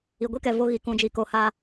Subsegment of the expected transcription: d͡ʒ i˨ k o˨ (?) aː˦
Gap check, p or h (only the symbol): h